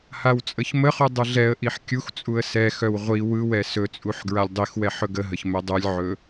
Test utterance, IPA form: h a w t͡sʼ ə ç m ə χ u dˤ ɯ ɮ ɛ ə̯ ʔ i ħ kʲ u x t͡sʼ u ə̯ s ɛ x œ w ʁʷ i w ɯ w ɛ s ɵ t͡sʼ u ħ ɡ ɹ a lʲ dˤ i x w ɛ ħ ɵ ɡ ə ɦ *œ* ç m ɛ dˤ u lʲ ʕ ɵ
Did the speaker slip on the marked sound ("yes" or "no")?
yes